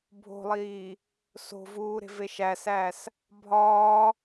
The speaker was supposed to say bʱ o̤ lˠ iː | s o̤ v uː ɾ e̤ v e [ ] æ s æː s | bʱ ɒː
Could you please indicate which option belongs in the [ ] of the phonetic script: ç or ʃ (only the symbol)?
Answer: ʃ